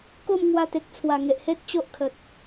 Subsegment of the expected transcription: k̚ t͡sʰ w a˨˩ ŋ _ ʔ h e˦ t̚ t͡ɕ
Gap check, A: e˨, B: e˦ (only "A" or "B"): A